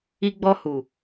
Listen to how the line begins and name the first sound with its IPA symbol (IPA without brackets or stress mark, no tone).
i